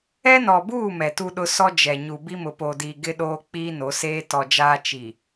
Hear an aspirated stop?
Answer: no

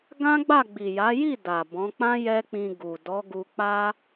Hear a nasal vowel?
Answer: yes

